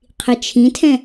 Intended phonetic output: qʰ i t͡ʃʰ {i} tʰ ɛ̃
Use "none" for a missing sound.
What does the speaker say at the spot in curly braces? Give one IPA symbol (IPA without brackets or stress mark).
ĩ